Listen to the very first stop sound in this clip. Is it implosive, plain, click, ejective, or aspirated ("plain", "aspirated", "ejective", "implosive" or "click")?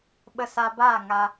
implosive